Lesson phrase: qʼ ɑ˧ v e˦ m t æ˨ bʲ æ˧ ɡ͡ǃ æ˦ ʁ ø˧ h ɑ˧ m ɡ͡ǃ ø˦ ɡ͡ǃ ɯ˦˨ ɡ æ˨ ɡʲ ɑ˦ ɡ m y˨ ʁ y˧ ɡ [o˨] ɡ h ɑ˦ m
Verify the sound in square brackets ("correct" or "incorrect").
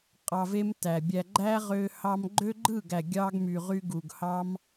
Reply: incorrect